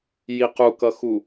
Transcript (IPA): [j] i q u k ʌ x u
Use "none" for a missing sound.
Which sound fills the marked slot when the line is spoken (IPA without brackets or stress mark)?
j